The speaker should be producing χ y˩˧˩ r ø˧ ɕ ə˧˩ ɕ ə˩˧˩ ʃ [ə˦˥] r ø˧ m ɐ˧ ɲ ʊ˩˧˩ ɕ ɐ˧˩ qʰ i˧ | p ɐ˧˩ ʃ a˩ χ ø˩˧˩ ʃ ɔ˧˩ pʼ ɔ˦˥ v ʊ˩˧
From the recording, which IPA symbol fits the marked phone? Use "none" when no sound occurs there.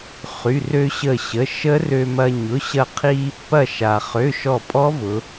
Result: ə˦˥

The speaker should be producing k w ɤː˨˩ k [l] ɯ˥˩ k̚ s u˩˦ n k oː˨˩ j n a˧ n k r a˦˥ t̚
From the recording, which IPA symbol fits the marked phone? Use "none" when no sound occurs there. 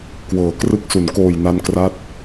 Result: r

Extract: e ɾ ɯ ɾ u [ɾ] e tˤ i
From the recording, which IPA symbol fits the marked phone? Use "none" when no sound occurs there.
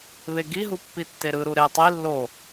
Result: ɾ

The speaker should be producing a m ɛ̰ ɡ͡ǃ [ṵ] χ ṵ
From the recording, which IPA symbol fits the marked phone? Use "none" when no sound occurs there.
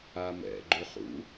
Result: u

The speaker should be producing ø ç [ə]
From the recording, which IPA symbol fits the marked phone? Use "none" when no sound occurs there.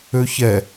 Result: ɛ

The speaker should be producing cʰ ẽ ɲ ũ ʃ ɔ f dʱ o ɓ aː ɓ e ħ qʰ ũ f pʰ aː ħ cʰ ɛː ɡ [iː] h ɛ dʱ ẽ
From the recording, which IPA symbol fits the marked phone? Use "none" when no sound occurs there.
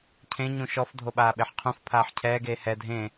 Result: eː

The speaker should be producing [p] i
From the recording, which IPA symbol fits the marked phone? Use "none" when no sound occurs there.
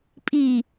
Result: pʼ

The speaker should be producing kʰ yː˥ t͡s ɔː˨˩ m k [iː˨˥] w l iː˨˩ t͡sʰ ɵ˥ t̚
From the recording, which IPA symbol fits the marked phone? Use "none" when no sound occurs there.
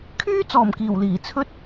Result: iː˨˩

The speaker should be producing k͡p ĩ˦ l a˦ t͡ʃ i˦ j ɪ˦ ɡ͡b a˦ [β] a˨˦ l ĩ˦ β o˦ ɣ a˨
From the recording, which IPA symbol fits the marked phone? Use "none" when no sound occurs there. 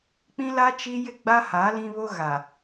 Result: h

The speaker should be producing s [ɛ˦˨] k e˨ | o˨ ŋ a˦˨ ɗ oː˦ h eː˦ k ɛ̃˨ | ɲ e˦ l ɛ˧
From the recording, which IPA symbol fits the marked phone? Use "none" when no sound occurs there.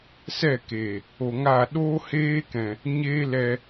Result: ɛ˦˨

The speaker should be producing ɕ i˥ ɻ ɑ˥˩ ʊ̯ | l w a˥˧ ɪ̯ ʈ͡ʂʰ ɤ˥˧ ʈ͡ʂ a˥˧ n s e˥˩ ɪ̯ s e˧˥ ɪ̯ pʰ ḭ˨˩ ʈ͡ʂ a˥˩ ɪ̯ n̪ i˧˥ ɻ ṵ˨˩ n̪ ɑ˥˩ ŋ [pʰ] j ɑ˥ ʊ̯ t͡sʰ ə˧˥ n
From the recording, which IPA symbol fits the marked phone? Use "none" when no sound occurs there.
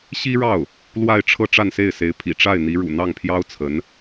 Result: pʰ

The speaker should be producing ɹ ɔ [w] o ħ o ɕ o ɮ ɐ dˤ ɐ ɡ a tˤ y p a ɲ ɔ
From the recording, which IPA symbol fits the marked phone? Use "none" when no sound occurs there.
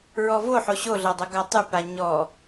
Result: v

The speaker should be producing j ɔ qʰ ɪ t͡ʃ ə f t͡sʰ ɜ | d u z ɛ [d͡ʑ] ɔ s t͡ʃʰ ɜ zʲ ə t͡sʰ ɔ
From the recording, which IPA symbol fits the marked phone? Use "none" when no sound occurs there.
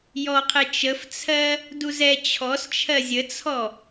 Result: t͡ɕʰ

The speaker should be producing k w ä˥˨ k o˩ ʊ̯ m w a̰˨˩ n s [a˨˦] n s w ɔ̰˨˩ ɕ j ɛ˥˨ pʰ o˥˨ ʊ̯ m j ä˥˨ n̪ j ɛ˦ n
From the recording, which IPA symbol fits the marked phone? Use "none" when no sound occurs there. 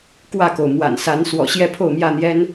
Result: a˨˦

